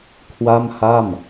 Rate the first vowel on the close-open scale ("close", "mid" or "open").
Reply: open